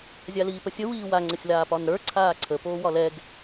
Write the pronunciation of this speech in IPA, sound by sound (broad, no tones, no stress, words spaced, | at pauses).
zʲaliːpəsʲə wiːwa ŋ͡ǀəsʲlaːpɒnɾə˞ ǀʰaːǀʰə poːwɒlɛɡ